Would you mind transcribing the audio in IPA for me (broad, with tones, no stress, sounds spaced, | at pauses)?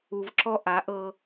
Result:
u˨ v ǁ ɔ˦ ʔ a˨˦ ʔ ɤ˦